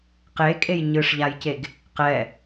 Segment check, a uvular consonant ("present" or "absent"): present